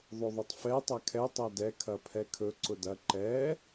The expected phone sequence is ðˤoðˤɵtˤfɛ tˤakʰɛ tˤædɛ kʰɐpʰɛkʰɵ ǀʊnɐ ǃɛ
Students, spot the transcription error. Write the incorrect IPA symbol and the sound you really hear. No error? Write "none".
n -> d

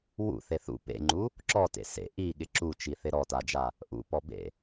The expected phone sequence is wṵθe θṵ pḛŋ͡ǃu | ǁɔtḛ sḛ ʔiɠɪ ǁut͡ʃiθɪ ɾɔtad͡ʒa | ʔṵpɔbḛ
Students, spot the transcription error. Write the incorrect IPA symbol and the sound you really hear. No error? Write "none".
none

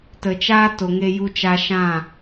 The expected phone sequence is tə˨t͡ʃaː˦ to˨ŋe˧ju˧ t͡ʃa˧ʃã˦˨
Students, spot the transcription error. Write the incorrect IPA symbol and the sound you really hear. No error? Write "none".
none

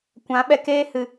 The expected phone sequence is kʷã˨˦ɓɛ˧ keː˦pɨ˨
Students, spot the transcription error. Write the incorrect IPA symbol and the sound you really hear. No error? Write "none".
p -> h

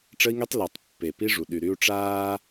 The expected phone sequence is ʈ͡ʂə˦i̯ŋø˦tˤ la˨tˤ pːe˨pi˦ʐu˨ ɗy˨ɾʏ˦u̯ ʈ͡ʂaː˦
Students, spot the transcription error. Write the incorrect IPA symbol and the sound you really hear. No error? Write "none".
ʏ˦ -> y˦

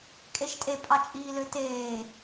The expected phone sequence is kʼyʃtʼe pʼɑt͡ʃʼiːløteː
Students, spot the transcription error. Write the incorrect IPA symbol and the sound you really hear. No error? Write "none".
y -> e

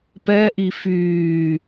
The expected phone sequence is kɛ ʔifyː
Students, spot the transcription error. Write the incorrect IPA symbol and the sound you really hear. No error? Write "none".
k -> p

